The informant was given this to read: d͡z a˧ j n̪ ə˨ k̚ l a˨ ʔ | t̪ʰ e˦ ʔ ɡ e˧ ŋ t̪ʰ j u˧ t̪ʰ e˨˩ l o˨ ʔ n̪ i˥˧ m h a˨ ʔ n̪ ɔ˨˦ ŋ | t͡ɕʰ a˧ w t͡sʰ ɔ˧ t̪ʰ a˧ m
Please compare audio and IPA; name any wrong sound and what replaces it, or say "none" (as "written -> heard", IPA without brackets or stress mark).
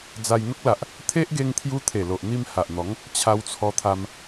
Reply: ə˨ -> ə˦